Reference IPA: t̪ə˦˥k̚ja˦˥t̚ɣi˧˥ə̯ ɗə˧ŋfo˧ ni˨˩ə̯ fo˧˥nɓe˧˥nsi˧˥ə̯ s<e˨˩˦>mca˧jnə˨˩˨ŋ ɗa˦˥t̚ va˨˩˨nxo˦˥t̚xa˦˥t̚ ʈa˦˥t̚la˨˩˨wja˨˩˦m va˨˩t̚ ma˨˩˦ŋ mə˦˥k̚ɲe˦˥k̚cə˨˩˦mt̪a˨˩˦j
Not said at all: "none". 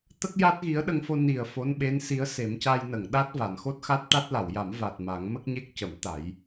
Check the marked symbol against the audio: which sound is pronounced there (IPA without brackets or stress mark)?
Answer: e˨˩˦